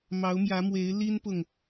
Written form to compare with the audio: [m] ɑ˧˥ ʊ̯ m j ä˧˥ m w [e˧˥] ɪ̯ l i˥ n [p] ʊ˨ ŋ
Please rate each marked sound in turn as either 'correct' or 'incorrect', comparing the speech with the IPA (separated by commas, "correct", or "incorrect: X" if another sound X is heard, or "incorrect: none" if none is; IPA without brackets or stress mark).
correct, correct, correct